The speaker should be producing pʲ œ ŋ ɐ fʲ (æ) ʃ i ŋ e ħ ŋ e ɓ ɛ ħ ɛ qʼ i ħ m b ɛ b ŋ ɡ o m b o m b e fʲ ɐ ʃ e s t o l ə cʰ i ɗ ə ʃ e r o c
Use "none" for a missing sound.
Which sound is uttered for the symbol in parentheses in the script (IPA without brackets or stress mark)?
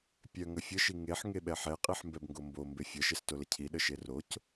ə